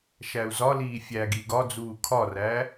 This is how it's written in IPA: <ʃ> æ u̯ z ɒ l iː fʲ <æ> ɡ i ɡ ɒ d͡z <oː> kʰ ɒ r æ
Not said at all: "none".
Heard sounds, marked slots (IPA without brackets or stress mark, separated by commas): ʃ, æ, uː